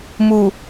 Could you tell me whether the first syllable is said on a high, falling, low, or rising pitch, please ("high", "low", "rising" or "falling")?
low